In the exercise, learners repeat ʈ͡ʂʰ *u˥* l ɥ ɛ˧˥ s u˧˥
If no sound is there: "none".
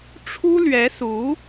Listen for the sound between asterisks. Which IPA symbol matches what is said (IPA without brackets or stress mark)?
u˥